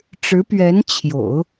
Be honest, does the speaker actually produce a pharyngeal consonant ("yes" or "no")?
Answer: no